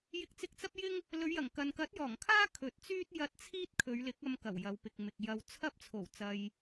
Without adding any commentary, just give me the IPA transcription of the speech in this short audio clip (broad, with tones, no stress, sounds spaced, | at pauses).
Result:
j ɪ˧ k̚ t͡s ɪ˧ k̚ t͡s ɐ˥ p̚ j ɪ˥ ŋ | l ɵ˨˧ ɥ j ɐ˨˩ ŋ k ɐ˨ n k ɐ˨˥ t̚ j ɔː˨˩ ŋ kʰ aː˥ kʰ ɵ˨˥ t̚ t͡s yː˥ t̚ j ɐ˧ t̚ t͡sʰ iː˥ t̚ kʰ ɵ˨˧ ɥ l ɪ˨˥ k̚ ɐ˧ m k ɐ˨˩ w j ɐ˨˧ w p ɪ˨ k̚ m ɪ˨ k̚ j ɐ˨ w t͡sʰ ɐ˥ p̚ t͡sʰ o˨˩ w t͡s ɐ˧ j